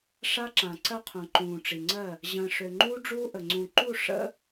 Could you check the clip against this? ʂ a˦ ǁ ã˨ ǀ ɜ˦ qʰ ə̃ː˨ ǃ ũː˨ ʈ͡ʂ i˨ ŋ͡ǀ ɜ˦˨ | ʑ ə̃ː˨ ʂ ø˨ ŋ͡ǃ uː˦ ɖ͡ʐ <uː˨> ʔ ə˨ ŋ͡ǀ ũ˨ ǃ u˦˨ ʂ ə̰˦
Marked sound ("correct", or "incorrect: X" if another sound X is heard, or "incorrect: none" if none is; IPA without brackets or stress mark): incorrect: uː˦